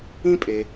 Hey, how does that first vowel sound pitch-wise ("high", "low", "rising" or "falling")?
high